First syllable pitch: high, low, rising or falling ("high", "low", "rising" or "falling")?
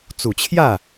low